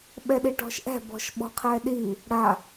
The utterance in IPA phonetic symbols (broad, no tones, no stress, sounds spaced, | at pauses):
ɓ ɛ ɗ i ʈ ɔ̤ ʃ ʔ ɛ̤ b ɔ̤ ʃ ɓ ɔ̤ qʰ ɛ ɗ i | ɽ a